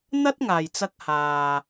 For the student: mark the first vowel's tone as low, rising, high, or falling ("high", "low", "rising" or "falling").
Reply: high